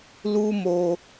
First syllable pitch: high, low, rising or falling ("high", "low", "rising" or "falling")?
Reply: high